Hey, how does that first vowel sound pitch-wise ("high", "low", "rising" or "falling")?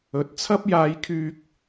rising